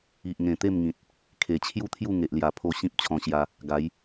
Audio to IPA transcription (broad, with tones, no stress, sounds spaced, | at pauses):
i˨ ʔ ŋ ẽ˨˩ t̪ e˥˧ m ŋ ĩ˨ t̚ | kʰ e˨˩ t͡ɕʰ j u˥˧ t̪ʰ j u˥˧ ŋ e˨ ʔ l j a˨˩ pʰ o˧ ɕ ĩ˦ p̚ t͡ɕʰ ɔ̃˧ ɕ j a˧ | ɡ a˨˦ j